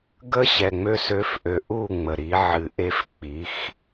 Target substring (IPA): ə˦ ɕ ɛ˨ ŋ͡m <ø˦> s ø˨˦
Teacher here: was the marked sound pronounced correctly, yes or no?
yes